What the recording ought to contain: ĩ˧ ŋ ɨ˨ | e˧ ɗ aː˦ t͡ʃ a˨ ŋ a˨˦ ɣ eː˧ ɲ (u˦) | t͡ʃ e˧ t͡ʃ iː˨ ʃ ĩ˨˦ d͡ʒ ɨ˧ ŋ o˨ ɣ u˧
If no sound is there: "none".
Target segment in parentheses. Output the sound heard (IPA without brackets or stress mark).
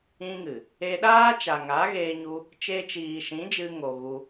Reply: u˧